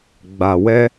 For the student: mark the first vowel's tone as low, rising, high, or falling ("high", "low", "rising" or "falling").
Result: low